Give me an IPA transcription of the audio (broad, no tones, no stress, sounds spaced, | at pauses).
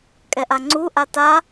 kʼ ɛ ʔ a ŋ͡ǀ u ʔ a t a